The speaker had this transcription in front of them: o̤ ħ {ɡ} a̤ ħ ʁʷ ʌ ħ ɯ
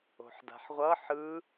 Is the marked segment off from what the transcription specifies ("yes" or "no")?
yes